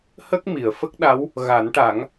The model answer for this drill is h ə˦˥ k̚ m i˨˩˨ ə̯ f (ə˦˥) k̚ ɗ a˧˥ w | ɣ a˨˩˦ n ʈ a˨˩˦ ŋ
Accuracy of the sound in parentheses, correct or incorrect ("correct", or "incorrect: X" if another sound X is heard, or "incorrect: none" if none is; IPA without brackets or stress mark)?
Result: correct